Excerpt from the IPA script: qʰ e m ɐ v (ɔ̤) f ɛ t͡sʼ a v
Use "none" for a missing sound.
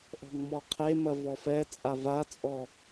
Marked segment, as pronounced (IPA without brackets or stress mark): ɔ